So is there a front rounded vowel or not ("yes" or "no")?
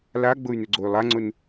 yes